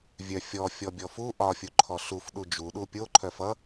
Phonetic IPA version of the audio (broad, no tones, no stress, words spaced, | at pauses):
vʲœ fʲɔ fʲɔbʲɔfu ʔɒ fʲuǃʰɔɬuf ɗud͡ʒu ɗupʲo ǃʰœfʌ